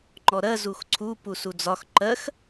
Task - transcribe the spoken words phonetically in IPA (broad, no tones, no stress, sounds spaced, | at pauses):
ŋ͡ǃ ɔ ɾ ɜ z u x ǀʰ u p u s u d͡z ɒ x ǃ ɜ x